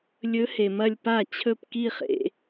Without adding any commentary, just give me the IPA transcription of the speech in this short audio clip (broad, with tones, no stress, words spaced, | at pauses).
lʲɵ˧˥ he˨mɐ˥˧lʲ pa˥˩ t͡ɕʰɵ˥˩pki˥˧χḛ˨